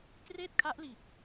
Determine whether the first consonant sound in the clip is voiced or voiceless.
voiceless